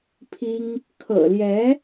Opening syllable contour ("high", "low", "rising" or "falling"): high